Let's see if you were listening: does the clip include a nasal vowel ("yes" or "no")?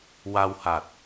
no